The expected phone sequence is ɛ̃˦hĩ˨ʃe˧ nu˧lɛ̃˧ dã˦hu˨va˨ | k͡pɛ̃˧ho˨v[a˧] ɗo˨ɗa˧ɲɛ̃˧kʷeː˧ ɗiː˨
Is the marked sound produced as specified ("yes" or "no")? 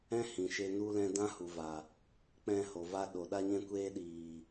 yes